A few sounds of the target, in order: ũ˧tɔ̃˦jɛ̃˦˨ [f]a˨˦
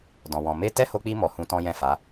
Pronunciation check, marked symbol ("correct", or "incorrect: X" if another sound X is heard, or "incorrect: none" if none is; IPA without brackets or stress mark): correct